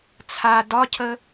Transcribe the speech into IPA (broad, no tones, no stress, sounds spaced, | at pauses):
t͡sʰ a d ɒ cʰ ə